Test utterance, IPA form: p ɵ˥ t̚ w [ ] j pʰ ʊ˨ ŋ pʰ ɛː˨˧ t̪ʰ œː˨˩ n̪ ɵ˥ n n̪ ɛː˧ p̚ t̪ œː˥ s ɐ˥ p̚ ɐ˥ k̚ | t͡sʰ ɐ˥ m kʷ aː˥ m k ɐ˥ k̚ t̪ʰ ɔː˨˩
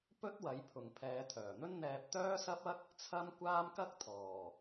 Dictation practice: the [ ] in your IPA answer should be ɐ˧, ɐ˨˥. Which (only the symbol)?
ɐ˨˥